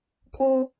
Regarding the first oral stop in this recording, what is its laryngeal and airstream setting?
ejective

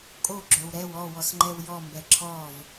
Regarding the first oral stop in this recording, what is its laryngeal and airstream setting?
ejective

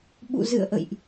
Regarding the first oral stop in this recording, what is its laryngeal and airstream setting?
implosive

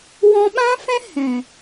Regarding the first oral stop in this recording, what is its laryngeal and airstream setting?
implosive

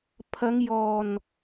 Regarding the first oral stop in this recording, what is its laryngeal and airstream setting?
aspirated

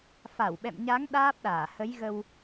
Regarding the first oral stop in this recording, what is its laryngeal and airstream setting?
implosive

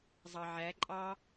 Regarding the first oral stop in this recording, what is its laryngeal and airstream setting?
click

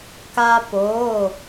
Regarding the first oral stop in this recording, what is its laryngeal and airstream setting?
plain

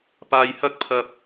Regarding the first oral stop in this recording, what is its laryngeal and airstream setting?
plain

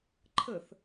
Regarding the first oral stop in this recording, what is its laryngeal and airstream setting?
click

